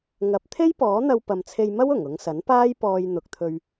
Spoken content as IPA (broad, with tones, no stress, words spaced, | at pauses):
ŋɐ˨˥p̚t̪ʰe˥jpɔː˨˥n̪ɐ˧w pɐ˨mt͡sʰe˧jmɐ˥w ʊ˨˩ŋʊ˨˧ŋsɐ˨˥npaː˥j pɔː˧jn̪ʊ˨k̚t̪ʰɵ˧ɥ